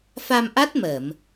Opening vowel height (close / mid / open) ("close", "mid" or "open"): open